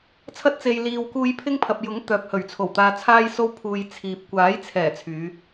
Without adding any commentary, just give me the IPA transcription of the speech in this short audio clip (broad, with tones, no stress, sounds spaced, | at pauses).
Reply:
t͡sʰ ɐ˧ t̚ t͡s e˨ j l iː˨ w k uː˧ j pʰ ɪ˥ ŋ pʰ ɐ˨ p̚ j ʊ˨˥ ŋ t̪ œː˨ p̚ h ɵ˨˩ ɥ t͡sʰ o˨˩ w t̪ aː˧ t͡sʰ aː˥ j s o˥ w pʰ uː˧ j t͡sʰ iː˨ p̚ kʷ aː˨˥ j t͡sʰ ɛː˨˩ t͡sʰ yː˨˧